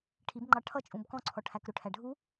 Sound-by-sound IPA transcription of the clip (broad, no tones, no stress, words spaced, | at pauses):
ʈʰibŋ͡ǃɑ ʈʰʌt͡ʃʼũb kɔ̃ǀʰɔʈʰæk ɾʊʈʰæ ɖʱu